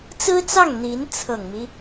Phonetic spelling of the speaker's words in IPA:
t͡s ɹ̩˥ t͡s ɑ˥˩ ŋ n̪ i˧˥ n t͡sʰ ɤ˨˩ ŋ m i˦

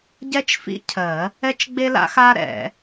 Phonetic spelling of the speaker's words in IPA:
ɟ ɛ˥ t͡ʃ f ḭ˥ cʰ ɜ˨˩˦ | ɛ˥ t͡ʃ ɡ͡b e˥ l a̰˥ x a˥ ɾ ɛ̰˨˩˦

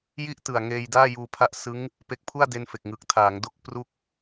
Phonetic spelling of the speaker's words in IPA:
j i˥˩ ʔ t ɯ˨˩ a̯ ŋ eː˧ j d aː˥˩ j uː˧ pʰ a˦˥ ʔ s ɯ˦˥ ŋ | p e˦˥ k̚ pʰ u˥˩ a̯ d e˧ n f e˨˩ k̚ ŋ ɯ˨˩ k̚ tʰ aː˩˦ ŋ d o˥˩ k̚ p r u˦˥ k̚

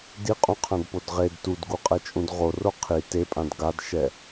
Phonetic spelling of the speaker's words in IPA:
d i qʼ ũ qʰ ã d p o d ʁ e d t u d ɡ u qʼ ɛ t͡ʃʼ ũ d ʁ o r o qʰ i t e pʼ ã d ɡ a d ʃ ɛ

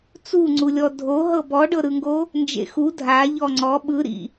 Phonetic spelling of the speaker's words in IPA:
t͡s u ŋ͡ǀ u lʲ ɔ dʱ o ɦ ɤ b ɔ ɖ ɤ ɾ ɯ ŋ ɡ o | n d͡ʒ ḛ x u dʱ a ʎ ɔ ŋ͡ǀ ɔ ɓ ɯ ɾ ḭ

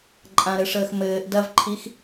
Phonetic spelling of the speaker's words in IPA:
ǃʼ ã ɾ ɘ ʂ əː x m ɘː ʔ d ɐ v ǃʰ i x

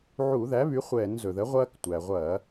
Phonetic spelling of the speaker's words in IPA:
ʕ u˧˩˧ ð æ˩˥ β y˩˥ χʷ ɛː˧˩˧ n z ɵ˩ ð ə˩˥ ʁʷ ɐː˧ k tʷ æ˩ ʁʷ ɐː˧˩˧

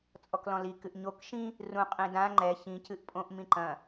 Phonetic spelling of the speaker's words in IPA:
t͡sʼ ɔ k l ɔ̃ l i k ɨ ʔ ɲ o k ʃ ĩ | r ũ qʼ ĩ d ã ŋ͡ǃ ɛ ç ĩ c ɨ ʔ pʼ õ ʔ m ĩ ǃ ɐ̃

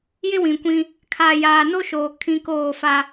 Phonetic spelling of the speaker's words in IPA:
j ɪ˦ w ĩ˨ kʷ ĩ˦ | kʰ a˨ j aː˨ n o˦ ʃ oː˨ kʰ ĩ˦ k oː˦˨ f a˦

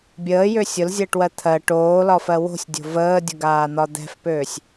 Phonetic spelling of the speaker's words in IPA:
bʲ əː j ø sʲ ʊ l zʲ əː ʈ w ɜ t̪ʰ ɜ ʈ oː l ɒ f ɜ w o̤ sʲ dʲ o̤ v əː dʲ ʊ ɡ aː n̪ ɒ d̪ ɛ̤ f p øː sʲ

